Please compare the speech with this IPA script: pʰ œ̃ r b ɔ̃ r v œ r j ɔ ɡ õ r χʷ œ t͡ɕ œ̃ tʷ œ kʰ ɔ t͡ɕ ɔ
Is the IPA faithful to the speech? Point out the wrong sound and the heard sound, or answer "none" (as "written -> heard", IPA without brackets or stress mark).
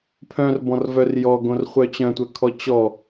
none